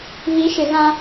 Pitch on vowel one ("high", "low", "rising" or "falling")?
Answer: rising